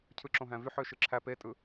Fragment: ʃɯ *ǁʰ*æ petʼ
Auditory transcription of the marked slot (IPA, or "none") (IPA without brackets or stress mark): ǁʰ